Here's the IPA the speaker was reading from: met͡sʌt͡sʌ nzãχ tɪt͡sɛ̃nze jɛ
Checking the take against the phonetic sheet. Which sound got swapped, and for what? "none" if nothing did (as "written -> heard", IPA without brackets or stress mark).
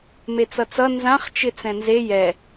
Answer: t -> t͡ʃ